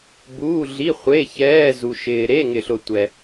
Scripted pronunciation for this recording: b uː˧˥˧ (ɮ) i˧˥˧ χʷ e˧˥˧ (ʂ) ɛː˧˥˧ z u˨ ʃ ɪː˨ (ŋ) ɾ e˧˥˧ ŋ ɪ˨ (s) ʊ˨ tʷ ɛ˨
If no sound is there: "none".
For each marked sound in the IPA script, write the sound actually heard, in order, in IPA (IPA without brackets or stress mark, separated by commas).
ɮ, ç, none, ɬ